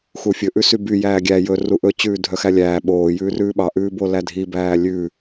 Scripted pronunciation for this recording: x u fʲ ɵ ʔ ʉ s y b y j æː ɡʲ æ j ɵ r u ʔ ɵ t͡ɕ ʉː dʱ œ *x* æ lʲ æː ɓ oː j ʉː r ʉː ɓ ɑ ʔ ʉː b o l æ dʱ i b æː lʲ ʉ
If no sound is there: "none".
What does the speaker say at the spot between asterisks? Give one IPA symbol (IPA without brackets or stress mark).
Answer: x